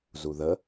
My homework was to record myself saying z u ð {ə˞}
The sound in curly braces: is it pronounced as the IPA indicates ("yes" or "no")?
no